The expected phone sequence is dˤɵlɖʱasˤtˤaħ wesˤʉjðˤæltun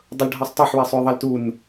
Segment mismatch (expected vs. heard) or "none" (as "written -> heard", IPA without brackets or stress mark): æ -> a